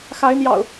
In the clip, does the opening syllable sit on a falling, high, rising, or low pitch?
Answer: rising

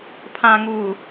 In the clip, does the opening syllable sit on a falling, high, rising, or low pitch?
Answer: low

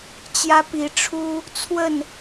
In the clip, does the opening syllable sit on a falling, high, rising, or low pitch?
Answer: high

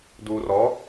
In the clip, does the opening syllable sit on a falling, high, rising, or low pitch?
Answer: low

